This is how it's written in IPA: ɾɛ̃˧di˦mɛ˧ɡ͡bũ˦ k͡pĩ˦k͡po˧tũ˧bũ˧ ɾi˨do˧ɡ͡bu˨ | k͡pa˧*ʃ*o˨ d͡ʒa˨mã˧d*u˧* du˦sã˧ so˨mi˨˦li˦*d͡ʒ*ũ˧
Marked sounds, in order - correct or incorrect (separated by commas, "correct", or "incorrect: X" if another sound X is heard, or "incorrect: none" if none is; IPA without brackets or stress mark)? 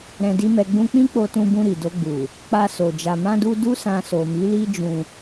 incorrect: s, correct, correct